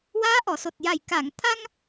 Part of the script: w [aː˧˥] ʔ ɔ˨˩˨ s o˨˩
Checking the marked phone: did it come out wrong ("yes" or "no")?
no